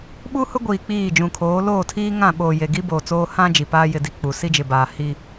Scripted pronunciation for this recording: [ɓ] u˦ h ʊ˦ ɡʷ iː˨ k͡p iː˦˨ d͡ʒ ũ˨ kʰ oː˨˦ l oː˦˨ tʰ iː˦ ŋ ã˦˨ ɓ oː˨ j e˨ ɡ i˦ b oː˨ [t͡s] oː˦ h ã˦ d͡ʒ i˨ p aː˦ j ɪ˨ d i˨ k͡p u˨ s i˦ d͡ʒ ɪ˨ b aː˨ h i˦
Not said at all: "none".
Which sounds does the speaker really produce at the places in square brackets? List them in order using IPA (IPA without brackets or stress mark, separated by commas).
ɓ, t͡s